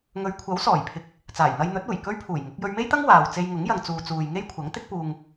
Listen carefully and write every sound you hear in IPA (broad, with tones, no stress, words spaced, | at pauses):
ŋɵ˨˧ɥkʷʰɐ˨˥wsɔː˨˩jpʰɪ˨k̚ | t͡saː˨˩jn̪ɐ˧jn̪ɵ˨˥t̚uː˨˩j kɵ˥ɥpʰuː˨˩jŋʊ˨˥k̚ jɵ˧ɥme˥jt̪ɐ˥ŋ waː˨w t͡se˧jŋʊ˨˥ŋjɐ˨ŋ t͡suː˨t͡suː˨jŋe˥jkʷʰɐ˨˥ŋ t̪ɪ˥k̚puː˧ŋ